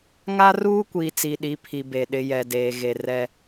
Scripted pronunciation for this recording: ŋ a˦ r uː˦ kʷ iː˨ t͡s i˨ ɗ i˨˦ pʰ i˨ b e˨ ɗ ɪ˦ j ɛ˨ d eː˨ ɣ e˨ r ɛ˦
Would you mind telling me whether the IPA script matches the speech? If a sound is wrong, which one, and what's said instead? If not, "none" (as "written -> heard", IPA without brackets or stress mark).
none